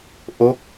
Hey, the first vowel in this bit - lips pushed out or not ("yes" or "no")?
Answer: yes